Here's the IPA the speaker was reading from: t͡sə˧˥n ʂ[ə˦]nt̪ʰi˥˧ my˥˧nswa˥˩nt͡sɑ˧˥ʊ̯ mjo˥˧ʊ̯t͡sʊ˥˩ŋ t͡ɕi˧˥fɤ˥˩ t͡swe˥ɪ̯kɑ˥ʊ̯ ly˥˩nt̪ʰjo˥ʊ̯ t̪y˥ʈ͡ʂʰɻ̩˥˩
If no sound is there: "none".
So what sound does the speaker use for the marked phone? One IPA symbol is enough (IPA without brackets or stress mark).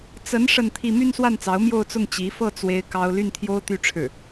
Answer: ə˥˧